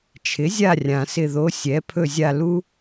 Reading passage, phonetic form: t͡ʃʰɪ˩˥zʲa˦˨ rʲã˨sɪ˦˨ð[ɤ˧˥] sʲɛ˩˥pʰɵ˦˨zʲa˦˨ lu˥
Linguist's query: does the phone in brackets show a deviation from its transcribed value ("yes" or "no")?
yes